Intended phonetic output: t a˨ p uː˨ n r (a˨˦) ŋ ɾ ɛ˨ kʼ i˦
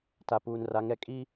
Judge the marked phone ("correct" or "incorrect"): correct